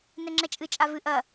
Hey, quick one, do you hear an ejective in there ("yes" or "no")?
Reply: yes